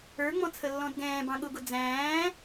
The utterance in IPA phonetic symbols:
ə˞ŋ͡mɔ̃t͡sʰəlːɔ̃d ɡɛ̃ːbɑ̃ ɠʊɡʊ d͡zæ̃ː

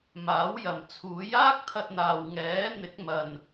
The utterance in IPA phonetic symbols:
maː˨˥wjɐ˨mt͡sʰuː˨˥j aː˥k̚t̪ʰɐ˧t̚n̪aː˨w ŋɛː˨˥n̪ɪ˨˥k̚mɐ˨n

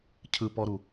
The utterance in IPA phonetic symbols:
cʰɯpɔɾu

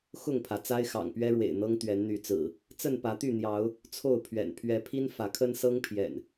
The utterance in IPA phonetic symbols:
xʊ˥˨ŋpʰä˩ t͡sa˦ɪ̯xɑ̰˨˩ŋpɥɛ˦ɻwḛ˨˩ɪ̯ n̪ɤ˦ŋt̪ɥɛ˨˦nn̪y˨˦t͡sɹ̩˨˩ | t͡sə˥˨npä˨˦t̪y˥˨n̪jɑ˨˦ʊ̯ | t͡sʰo˥˨ʊ̯pʰɥɛ̰˨˩n pʰɥɛ˨˦pʰi˦n fä˨˦kʰə˦nsɤ˦ŋpʰjɛ̰˨˩n

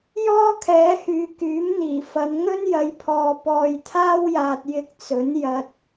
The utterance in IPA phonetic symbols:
jɔː˥kʰɛː˨˧hyː˨ kyː˨˥mn̪iː˨˩fɐ˨˧n ŋɵ˥njɐ˨˧jpʰɔː˨ pɔː˨jt̪ʰaː˥wjaː˨t̚ jɪ˧k̚t͡sɵ˨˥njɐ˧t̚

